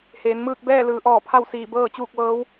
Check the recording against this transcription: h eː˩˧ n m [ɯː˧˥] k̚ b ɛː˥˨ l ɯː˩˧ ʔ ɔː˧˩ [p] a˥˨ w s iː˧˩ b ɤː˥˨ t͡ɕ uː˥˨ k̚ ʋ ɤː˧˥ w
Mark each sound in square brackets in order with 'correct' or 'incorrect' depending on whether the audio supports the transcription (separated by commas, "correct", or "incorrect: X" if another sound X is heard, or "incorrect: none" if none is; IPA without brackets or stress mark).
incorrect: ɯː˥˨, incorrect: pʰ